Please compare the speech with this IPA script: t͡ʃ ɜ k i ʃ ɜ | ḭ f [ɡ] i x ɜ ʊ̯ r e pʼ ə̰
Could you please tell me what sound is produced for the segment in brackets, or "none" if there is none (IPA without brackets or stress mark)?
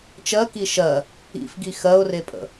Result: ɡ